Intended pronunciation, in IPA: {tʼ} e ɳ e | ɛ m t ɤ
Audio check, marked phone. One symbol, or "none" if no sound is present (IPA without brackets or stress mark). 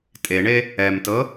tʼ